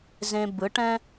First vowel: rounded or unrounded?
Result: unrounded